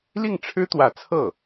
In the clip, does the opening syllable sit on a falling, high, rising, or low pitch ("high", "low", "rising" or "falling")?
falling